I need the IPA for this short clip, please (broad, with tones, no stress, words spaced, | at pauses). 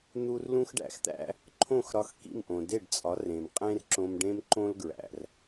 n̪u˥r lũ˥xɖæ̰˧xt̪æ̰˥ | ǃʰõ˥˩xɾɒ˧xkḭ˥˩mʔõ˩ de˥˩ɖt͡sʼɒ˩˥ rẽ˩m qʼẽ˥rǁõ˧mɖẽ˥m ǃõ˥lɡɹæ̰˩r